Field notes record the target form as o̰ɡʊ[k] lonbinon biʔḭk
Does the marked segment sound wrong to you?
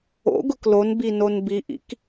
no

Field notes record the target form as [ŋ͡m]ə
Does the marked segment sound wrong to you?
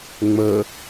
no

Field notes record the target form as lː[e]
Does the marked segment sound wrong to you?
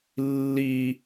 yes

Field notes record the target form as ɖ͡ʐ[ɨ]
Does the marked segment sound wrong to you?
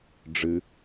no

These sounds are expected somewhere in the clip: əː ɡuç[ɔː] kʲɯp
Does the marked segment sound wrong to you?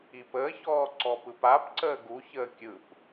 yes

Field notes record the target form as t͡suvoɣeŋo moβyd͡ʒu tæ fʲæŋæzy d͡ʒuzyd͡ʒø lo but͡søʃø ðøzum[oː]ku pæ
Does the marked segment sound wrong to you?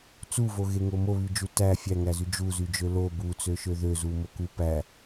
yes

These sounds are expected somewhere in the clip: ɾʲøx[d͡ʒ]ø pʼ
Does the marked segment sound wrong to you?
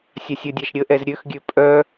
yes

